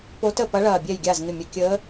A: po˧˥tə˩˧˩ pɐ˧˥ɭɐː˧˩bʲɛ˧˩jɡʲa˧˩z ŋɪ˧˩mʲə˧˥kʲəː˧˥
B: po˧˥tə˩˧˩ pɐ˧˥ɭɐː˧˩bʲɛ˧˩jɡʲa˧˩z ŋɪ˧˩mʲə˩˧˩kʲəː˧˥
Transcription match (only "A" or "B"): B